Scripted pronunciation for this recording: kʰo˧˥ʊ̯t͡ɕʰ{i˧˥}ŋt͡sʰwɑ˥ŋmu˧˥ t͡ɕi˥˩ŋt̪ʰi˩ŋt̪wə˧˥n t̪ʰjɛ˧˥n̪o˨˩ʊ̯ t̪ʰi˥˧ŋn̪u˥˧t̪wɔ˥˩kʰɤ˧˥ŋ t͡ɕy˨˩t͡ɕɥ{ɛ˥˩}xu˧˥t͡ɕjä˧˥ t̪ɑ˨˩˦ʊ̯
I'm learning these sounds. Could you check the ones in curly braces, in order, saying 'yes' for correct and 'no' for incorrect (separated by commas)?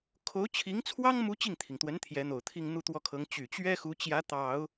yes, no